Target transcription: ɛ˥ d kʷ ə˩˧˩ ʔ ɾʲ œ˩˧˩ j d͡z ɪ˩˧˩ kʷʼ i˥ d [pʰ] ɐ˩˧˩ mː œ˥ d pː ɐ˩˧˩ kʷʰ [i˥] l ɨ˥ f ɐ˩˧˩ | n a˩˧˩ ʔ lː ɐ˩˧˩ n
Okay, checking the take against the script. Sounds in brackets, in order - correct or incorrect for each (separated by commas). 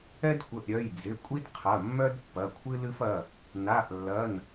incorrect, incorrect